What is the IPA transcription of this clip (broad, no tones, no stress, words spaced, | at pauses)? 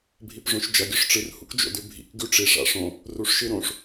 bʱipʐõʃd͡ʒɐ ɡʲɵʂʈ͡ʂɨr hṵkd͡ʒo̰dʉbʱḭk ɡʉʈ͡ʂi ʂa̰ʂõ | ruʂʃɨɾõʂ